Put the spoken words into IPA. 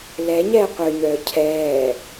l ɛ ɲ ɛː qʷ œ ɲ œː cʰ ɛː

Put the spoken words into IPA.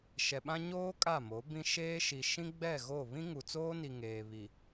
ʃ ɛ˨ ɓ ã˦ ɲ oː˦ kʼ a˦˨ m o˨˦ b ĩ˦ ʃ eː˦ ʃ i˨ ʃ ĩ˦ ɡ͡b ɛ˦˨ ɣ o˦˨ β ĩ˦ ŋ u˨ t͡s oː˦ n i˨ ŋ eː˨ β i˨

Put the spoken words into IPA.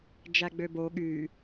d͡ʒ æ ɡ͡b ø b o ɠ y

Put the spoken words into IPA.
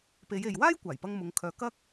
p e˨˧ j e˨ j w aː˥ j kʷ aː˨˩ j p ɐ˧ ŋ m ʊ˨˧ ŋ kʰ œː˨ k ɐ˥ k̚

